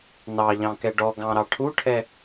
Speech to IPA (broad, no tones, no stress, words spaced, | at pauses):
nɑʎɑ̃kɛ ɖɔɡɑ̃ɾɑ ʈʰuʈʰɛ